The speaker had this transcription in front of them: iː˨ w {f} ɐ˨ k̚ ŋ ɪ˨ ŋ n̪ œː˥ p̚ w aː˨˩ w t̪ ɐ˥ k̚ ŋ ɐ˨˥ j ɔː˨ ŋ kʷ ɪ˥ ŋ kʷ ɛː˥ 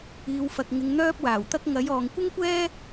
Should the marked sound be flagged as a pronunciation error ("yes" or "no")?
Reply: no